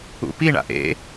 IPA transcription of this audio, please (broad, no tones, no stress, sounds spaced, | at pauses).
ṵ p i ɳ a̰ ʔ ḛ